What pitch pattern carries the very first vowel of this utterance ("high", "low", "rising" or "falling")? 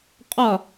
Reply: falling